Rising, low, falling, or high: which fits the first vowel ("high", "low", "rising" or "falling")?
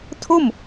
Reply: falling